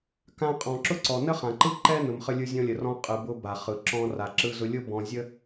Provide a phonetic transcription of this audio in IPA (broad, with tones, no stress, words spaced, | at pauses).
kã˧qʼɔ̃˩ǁʊ˥ǀɔ˩ nə˥χã˩ ǃɯ˥ǃɛ˥ nʊ˩mχə˧lʲɯ˧ zʲɔ̃˧lʲə˩rɔ̃˧ qʼɯ˩bʊ˧ ba˩χɯ˩ǁɔ̃˧ ra˩ǁɯ˧zʊ˧lʲʊ˥ bɔ̃˧zʲə˥